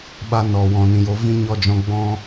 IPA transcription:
ɓa˧nɔ˨ wɔ̃˨ nĩ˨jo˨˦vĩ˦ ɲɔ˧d͡ʒɔ̃˧ ɡ͡bɔ̃˦

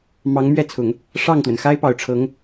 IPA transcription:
mɑ˧˥ŋmɥɛ˥˩t͡sʰʊ˨˩˦ŋ | ʂɑ˥˩ŋt̪wə˩n xa˥ɪ̯pɑ˨˩ʊ̯ʈ͡ʂʰɤ˧˥ŋ

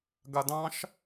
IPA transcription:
ɡadɑ̃ʃ

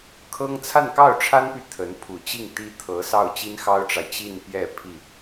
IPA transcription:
kʰɤ˥ŋ t͡sʰa˥˧nkɑ˥˩ʊ̯ʈ͡ʂʰa˥npy˨ t̪ʰə˧˥n pʰu˨˩t͡ɕi˥˩ŋt̪i˥ t̪ʰɤ˧˥ sɑ˥˩ʊ̯t͡ɕi˥nxɑ˥ʊ̯ʈ͡ʂa˨ɪ̯ t͡ɕi˥˧npjɛ˥˧ pʰi˥˩

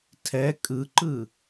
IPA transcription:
tʰɛ kʼɯǃɯ

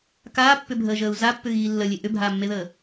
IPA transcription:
kaːpːʏbʱəːʒəːu̯ zapːʏɣiː lːəlʲe ʔʏbʱaːmːeðəː

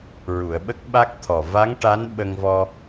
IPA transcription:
ɹu˨˩˨ə̯ɓə˦˥k̚ɓa˦˥k̚ t̪ʰɔ˨˩ va˧˥ŋʈa˧˥n ɓə˧ŋvɔ˧

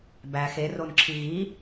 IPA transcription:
bæ xeronǁʰi ɣi

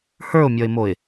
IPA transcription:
hə˞ʊ̯mʲɔɪ̯moɪ̯

